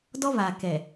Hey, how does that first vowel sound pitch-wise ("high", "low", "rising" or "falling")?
high